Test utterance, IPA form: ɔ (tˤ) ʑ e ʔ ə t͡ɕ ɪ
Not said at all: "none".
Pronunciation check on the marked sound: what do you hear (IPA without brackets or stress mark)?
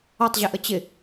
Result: tˤ